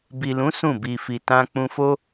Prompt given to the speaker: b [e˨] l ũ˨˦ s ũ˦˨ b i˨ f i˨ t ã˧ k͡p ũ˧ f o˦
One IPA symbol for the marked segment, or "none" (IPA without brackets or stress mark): i˨